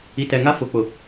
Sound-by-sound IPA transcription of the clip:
i˨tɛ˨ŋa˦ fʊ˨˦k͡pʊ˨

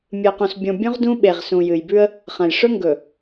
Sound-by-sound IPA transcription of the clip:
mʲɨ˨qũ˨sbʲõ˨ bʲũ˦ʁdũ˦ɓe˨ʁ sũ˨jɨ˨jbʉ˦ə̯ | χɐ̃˨jʂɵ˦ ŋɡɵ˨

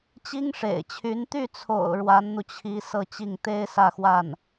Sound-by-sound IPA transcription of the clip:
t͡ɕi˥ŋʂḛ˨˩ɪ̯t͡ɕʰy˧˥n t̪y˥˩t͡sʰo̰˨˩ʊ̯ ɻwa˧˥nn̪u˧ t͡ɕʰi˧˥ sɤ˥˧t͡ɕi˥˩ŋ t̪e˥ɪ̯ sä˥˧xwa˥˩n

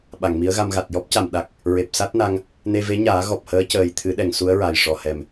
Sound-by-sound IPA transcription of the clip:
ɓa˨˩˨ŋmi˧˥ə̯ɣa˧mɣa˨˩t̚ jɔ˦˥p̚ca˨˩˨m ɗa˨˩k̚ | ɹe˨˩p̚sa˦˥t̚na˧ŋ | ne˧ve˧˥ɲaː˨˩˦ ɣɔ˨˩p̚həː˧˥cəː˨˩j t̪ʰɨ˨˩˦ɗɛ˨˩˨ŋ su˧˥ə̯ɹa˨˩j ʂɔ˨˩˨hɛ˨˩m

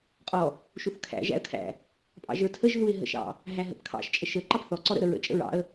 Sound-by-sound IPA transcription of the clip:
qʼɔ | ʃuθkʰæ̰ ʒæ̰ə̯kʰæ̰ | pʼɑ̰ʒə˞tʰəʒ ðuɪ̯ɦə̰ʃɑ̰ | ɦæɦə̰pkʰɑ̰ʃ t͡ʃʼəʃə ǃɑpθɔ ǀɔɾə̰ ɾəɹə̰ t͡ʃʼə̰ɹɑ̰ə̯

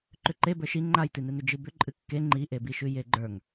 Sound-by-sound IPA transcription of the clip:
ǃʏǃe bə˞ʃi ŋ͡ǃajtinɨnʏ d͡ʒɨbʏ ǃʼɨkːe ŋ͡ǃiʔebiʃʉ jeɡ͡ǃə˞ŋ

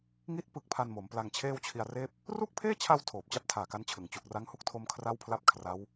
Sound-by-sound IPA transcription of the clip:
ŋi˦˥t̚ pɯ˦˥k̚pʰa˧nmo˩˦m pla˧ŋt͡ɕʰeː˥˩wt͡ɕʰi˧a̯reː˥˩p̚ | ru˥˩k̚pʰeː˥˩t͡ɕʰa˧w tʰoː˨˩p̚t͡ɕa˦˥p̚tʰaː˨˩ka˦˥n t͡ɕʰɯ˨˩ŋ t͡ɕu˨˩k̚ ra˦˥ŋhu˥˩k̚tʰo˧m kʰra˥˩wpʰla˥˩p̚ kʰra˦˥w

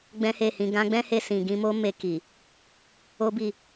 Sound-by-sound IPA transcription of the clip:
ɡ͡bɛ̃˦he˦˨hĩ˧ ɡã˧ɡ͡bɛ̃˦he˧sĩ˨ ɡĩ˧mo˦ me˧ki˨ | o˦bi˦˨

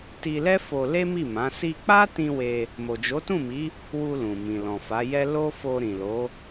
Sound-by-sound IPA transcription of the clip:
ti˧lɛ˦ fo˧le˦mi˦˨mã˨˦ si˧k͡pa˦tĩ˧ we˧ | mo˨d͡ʒo˨˦tũ˦˨mi˨˦ | wu˧lũ˨ mĩ˨lɔ̃˨fa˨˦ jɛ˦ lo˦fo˧ɾĩ˨lo˨˦

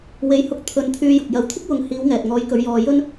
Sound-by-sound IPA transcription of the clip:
we˨˧jhʊ˧k̚ t̪ʰɵ˧n t̪ʰyː˧jʊ˨k̚ jɐ˨˧wt̪ʰɪ˥k̚wʊ˨˧ŋ hiː˨˧wŋɛː˨t̚ŋɔː˨˧jkɵ˨˧ɥ jɔː˧jɵ˥n

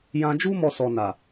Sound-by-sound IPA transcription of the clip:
jã˧d͡ʒu˦ mɔ˦sɔ˧na˨

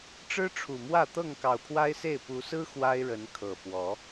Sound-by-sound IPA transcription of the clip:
ʈ͡ʂɻ̩˦ʈ͡ʂʰu˨˩mwä˥˨ t̪ɤ˥˨ŋkɑ˨˩ʊ̯pʰwa˦ɪ̯se˥˨ɪ̯ pu˨˦sɹ̩˦ xwa˦ɪ̯ɻə˨˦nkʰɤ˨˩ pwɔ˨˦

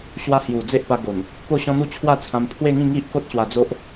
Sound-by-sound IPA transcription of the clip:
ɕwa˧hju˨˩ d͡ze˦ʔpa˧ɡo˨˩n | po˥˧ɕɔ̃˦n̪u˥˧ t͡ɕʰwa˥˧t͡sʰã˧mpʰwe˥˧ŋĩ˥˧ ŋi˦ʔko˦t̚ ɕwa˧d͡zo˦ʔ

